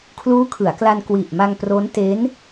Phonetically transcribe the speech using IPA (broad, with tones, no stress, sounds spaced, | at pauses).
kʰ l uː˦˥ kʰ ɯ˩˦ a̯ k l a˧ n k w i˨˩ ʔ m a˧ ŋ p r o˦˥ n t e˦˥ n